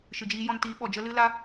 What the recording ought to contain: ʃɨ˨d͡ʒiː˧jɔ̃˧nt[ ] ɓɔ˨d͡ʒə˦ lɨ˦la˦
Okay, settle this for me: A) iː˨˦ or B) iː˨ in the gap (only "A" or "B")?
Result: A